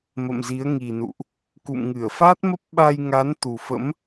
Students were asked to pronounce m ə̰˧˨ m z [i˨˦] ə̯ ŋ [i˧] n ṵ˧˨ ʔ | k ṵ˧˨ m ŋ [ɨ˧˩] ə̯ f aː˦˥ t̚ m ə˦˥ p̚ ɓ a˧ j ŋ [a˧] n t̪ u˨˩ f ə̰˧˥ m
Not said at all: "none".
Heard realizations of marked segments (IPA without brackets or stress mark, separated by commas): i˨˦, i˨˩, ɨ˧˩, a˨˦